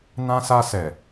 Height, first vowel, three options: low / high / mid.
low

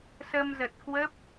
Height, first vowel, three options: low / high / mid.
mid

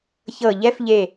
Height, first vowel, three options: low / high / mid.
mid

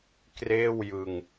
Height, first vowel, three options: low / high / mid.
mid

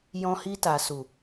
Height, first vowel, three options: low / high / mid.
mid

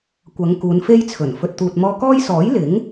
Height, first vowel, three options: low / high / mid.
low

